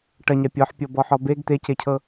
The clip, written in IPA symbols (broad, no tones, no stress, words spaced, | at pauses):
ʈɐɲa pʲɔħpʲɔbɔħɔ beɡ t̪ececʰɤ